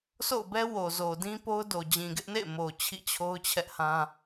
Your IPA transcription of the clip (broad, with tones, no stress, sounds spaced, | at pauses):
s o̰˦˨ ʊ̯ b ɛ˦ w o˨ z o˨ d ĩ˦ p o˦ ʊ̯ d o˨ d͡ʑ ĩ˨ ɡ ɪ˦ ʔ n ḛ˦˨ ɪ̯ m o˨ t͡ɕʰ ḭ˦˨ t͡ɕʰ o˦ ʊ̯ t͡ɕʰ ɛ˦ ʔ h ã˦